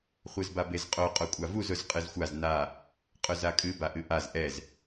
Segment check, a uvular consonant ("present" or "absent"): present